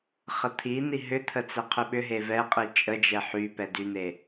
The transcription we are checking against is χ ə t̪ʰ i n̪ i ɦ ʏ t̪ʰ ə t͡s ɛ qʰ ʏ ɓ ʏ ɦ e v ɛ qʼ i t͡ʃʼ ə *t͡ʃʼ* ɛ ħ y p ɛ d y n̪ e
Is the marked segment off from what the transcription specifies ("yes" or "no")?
yes